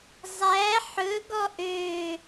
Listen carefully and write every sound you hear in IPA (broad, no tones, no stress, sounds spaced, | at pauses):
zˤ æ ħ ɵ ɡ ɔ ʔ ø